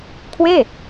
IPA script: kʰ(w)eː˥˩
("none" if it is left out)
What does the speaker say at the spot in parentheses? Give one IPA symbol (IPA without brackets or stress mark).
w